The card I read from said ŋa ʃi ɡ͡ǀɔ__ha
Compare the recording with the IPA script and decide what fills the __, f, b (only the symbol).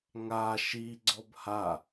b